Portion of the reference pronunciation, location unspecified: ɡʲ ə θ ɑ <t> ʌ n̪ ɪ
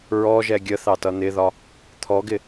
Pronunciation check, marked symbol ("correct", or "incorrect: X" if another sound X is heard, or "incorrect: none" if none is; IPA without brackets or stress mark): correct